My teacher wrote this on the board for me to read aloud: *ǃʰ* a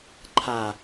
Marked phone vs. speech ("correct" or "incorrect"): correct